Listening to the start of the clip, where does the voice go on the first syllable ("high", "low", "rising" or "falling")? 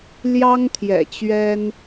high